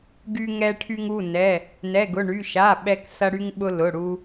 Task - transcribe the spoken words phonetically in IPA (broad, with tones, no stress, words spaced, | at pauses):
ɡy˧ŋɛ˧ʈʰy˧ŋ u˩˧˩nɛ˩˧˩ | nɛ˩˧˩ɡʊ˩˧˩ɳy˩˧˩ ʃa˩˧˩ ɓɛ˧k sɐ˧ ɽy˧ŋɓʊ˧ lʊ˩˧˩ɽu˧